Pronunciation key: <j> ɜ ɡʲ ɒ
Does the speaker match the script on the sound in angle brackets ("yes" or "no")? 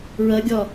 no